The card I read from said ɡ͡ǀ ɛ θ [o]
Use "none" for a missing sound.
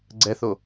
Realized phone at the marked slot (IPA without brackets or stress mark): o